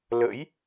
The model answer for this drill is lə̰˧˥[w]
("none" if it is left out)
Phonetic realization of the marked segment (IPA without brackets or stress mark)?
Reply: j